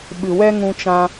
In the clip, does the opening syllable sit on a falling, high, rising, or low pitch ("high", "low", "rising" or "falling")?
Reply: low